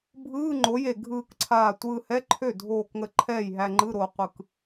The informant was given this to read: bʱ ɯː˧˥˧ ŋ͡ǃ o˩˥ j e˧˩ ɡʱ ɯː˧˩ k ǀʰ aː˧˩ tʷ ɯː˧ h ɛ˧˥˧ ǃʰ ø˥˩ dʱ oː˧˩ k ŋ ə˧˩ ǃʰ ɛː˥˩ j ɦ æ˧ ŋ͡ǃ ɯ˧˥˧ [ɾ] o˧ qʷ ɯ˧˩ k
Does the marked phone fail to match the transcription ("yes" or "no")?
no